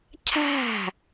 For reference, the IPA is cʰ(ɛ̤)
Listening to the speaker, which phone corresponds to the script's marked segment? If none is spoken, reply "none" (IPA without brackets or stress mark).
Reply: æ̤